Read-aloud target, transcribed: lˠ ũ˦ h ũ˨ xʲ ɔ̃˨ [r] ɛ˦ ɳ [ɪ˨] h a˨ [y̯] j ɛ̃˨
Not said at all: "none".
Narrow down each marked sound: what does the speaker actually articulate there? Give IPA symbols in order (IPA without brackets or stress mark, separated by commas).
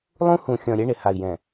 ɾʲ, ɪ˨, i̯